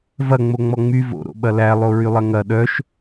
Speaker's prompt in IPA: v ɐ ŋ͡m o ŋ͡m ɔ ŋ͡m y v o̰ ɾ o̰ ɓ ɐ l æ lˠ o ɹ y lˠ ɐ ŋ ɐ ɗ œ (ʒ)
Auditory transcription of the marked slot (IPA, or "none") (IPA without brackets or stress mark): ʃ